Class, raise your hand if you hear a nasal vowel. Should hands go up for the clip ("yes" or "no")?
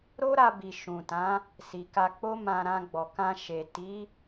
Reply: yes